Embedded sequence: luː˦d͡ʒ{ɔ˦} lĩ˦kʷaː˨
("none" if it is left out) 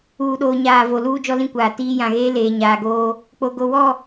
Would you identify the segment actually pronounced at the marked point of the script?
ɔ˦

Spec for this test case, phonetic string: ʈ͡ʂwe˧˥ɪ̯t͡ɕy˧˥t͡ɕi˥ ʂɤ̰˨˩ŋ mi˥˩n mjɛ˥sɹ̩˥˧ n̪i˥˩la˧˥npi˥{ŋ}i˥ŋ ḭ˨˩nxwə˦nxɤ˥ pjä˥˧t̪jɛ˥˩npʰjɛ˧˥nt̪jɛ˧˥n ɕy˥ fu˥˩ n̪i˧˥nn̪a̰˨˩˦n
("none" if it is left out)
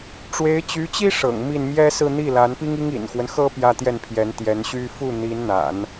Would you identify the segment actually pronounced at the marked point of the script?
ŋ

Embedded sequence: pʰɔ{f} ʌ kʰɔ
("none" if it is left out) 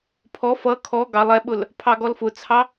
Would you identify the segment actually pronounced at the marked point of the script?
f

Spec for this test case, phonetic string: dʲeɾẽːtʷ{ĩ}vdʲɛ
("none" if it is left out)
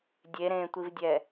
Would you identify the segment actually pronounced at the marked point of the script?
i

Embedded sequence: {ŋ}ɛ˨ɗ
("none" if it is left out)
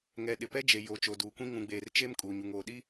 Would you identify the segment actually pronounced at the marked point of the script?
ŋ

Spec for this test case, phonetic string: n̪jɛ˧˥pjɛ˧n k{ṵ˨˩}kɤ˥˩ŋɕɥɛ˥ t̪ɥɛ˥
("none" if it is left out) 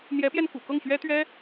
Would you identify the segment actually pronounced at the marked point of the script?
ṵ˨˩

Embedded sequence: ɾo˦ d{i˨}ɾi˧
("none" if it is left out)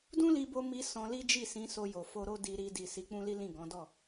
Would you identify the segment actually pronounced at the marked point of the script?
i˧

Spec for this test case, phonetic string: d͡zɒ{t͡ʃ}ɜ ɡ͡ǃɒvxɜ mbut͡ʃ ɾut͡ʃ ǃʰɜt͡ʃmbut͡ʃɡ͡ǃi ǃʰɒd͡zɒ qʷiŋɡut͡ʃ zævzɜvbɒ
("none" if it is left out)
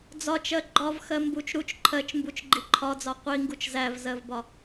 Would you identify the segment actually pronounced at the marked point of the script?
t͡ʃ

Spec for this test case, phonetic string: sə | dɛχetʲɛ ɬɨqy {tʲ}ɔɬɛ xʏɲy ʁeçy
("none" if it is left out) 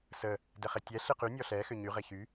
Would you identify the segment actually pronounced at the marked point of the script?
nʲ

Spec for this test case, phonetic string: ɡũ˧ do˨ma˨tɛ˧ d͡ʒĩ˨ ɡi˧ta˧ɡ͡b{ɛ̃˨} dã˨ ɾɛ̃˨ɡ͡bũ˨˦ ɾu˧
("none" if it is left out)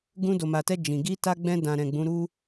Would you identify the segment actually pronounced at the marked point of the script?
ɛ̃˧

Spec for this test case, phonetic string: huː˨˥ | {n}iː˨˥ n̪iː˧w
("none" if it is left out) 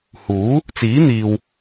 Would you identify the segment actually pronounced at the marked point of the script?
t͡s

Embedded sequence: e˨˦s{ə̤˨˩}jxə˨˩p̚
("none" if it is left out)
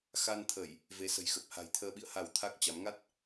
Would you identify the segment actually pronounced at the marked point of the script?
ə̤˨˩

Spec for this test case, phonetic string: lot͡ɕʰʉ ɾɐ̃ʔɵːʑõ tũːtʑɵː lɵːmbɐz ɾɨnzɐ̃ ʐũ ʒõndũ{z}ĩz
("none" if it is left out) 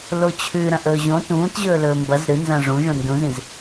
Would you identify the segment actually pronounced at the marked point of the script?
z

